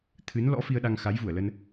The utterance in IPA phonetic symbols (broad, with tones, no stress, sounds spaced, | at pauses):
t̪ʰ ɨ˨˦ n l ɔ̰˧˥ f i˧ ə̯ ɗ a˧ ŋ x a˨˦ j v u˧˩ ə̯ l ə˧ n